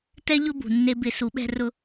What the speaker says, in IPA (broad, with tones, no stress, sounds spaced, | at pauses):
t ɛ˦ ʎ ʊ˦ b ṳ˨ nː e˧ b ɪ˦ s u˨˦ ɓ ɛ̤˦ r ʊ˦